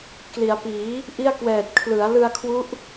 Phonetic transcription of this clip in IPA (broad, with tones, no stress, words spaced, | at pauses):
kli˩˦a̯piː˩˦ | ʔi˥˩a̯kwɛː˨˩t̚ kʰlɯ˩˦a̯lɯ˧a̯kʰwu˦˥ʔ